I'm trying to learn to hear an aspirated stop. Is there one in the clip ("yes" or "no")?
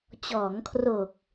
yes